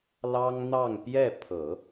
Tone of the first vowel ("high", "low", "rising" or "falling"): high